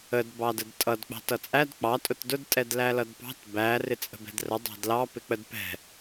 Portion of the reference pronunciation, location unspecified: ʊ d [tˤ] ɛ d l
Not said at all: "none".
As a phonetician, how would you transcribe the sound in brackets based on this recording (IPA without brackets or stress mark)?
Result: tʼ